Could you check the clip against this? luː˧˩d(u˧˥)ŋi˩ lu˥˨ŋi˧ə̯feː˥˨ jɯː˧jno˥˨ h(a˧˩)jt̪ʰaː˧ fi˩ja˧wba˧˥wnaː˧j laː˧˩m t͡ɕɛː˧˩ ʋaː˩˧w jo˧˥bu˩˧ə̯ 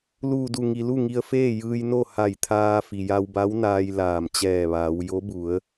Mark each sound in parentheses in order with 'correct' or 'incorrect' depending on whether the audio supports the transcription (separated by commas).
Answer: incorrect, correct